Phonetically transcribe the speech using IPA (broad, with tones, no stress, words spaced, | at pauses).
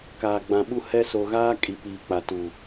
kaː˨ɡ͡bã˨ɓu˦ hɛ˦ so˨ɣaː˦ kʼi˨ piː˨k͡pa˨ tu˨